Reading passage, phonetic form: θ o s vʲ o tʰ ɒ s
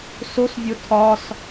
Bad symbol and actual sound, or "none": θ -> s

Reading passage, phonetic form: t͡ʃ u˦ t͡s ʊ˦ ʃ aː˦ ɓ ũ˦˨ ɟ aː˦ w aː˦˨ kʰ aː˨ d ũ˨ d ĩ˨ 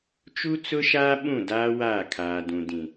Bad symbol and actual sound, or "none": ɟ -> d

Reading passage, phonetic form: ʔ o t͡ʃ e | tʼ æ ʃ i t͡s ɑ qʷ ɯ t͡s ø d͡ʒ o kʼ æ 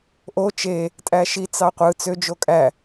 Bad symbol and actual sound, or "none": none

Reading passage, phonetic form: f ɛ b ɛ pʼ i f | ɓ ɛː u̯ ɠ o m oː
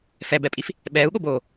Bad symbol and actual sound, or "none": m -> b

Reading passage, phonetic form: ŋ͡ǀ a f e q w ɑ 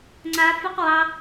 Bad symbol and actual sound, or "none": none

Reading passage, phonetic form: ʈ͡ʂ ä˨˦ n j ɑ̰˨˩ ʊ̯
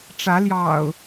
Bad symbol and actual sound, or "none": n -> l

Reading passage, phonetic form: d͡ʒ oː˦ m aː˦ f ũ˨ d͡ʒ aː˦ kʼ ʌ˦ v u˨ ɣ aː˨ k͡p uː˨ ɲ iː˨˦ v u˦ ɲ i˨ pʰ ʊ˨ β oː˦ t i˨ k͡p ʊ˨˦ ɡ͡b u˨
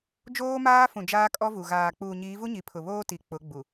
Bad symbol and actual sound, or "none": ʌ˦ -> ɔ˦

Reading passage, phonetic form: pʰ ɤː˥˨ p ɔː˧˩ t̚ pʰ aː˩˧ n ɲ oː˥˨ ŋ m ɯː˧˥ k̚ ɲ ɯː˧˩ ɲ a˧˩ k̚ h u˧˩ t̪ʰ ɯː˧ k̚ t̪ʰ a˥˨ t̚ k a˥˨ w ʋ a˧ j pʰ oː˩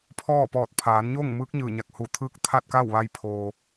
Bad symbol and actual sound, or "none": ɤː˥˨ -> ɔː˥˨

